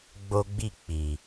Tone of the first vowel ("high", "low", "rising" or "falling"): high